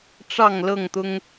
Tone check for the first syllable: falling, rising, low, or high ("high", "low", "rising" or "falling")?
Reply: falling